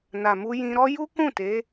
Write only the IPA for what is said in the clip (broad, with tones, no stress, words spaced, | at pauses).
na˨mu˧jĩ˧ɾɔ˦ ju˦kũ˦˨ te˨˦